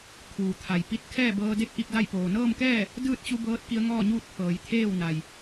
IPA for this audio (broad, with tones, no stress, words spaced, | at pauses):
kʰuː˩t̪ʰa˩j pi˧t̚ kʰɛː˥˨bɤː˧de˥˨k̚ʔi˥˨k̚ da˥˨jpoː˩ nɤː˥˨mkɛː˥˨ | dɯː˥˨t̚t͡ɕu˧ bɤː˧˥t̚ki˧ə̯ŋɔː˥˨ɲuː˥˨t̚ pʰɤː˩˧jt̪ʰeː˥˨w na˩j